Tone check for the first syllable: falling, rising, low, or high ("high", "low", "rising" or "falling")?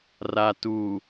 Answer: low